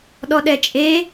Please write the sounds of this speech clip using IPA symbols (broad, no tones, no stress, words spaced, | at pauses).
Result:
ɗɔɗɛt͡ʃʼe